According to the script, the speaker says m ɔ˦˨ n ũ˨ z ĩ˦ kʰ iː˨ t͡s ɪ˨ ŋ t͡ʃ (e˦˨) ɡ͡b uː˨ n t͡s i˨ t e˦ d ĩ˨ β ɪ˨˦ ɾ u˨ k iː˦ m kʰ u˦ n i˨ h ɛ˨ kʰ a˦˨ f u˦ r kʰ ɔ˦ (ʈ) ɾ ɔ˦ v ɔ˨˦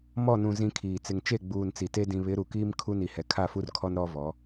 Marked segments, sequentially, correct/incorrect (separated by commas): correct, incorrect